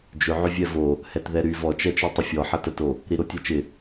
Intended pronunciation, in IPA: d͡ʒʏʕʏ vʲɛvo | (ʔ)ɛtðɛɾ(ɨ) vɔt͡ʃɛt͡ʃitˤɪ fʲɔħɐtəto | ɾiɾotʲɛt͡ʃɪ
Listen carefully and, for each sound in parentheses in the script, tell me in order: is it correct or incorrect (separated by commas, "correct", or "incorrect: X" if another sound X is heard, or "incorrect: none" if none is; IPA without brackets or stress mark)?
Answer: incorrect: h, incorrect: y